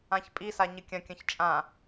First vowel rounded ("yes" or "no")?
no